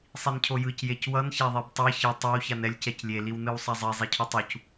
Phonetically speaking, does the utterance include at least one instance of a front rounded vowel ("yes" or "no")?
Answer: no